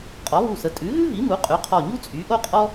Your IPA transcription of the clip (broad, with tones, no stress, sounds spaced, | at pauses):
qʼ ɔ˩˥ β u˧˩ s ə˩˥ tʼ ʉ˩˥ ɣ ʉ˥ v i˩˥ m u˩˥ qʼ ʉ˩˥ qʰ ɔ˧˩ ɲ u˥ t͡sʼ y˩˥ ʔ o˥ qʼ ɔ˥